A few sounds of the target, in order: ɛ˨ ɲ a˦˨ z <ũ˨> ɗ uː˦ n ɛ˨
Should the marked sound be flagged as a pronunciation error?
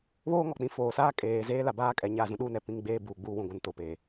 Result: yes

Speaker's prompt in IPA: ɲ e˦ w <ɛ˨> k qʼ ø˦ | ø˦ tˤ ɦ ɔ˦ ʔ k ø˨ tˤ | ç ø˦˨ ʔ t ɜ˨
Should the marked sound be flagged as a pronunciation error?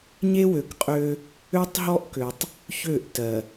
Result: yes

